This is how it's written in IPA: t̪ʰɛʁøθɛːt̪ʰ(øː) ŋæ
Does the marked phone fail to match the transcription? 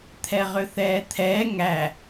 yes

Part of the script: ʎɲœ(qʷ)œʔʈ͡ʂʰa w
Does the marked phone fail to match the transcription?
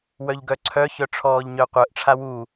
no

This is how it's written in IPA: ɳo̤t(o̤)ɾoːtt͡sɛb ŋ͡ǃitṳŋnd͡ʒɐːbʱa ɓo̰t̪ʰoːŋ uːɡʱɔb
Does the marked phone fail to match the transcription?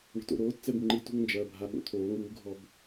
yes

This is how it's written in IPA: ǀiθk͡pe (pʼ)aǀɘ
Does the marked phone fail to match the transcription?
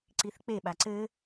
yes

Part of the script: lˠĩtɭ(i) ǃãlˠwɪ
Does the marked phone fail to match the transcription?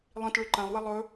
yes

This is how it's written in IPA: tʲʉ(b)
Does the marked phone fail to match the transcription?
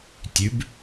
no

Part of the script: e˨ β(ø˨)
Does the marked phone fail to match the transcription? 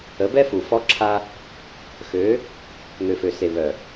yes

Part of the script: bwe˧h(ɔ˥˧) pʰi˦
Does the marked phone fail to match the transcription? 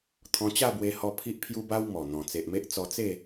yes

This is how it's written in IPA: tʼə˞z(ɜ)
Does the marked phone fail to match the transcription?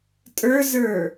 yes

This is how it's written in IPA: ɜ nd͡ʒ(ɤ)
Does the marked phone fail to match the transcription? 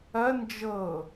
no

